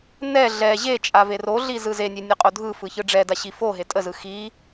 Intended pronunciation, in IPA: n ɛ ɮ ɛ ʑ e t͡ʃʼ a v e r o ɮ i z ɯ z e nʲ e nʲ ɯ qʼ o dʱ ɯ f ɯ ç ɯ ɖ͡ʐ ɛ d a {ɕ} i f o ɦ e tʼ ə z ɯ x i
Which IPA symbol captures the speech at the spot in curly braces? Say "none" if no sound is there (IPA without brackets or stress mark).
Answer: ɕ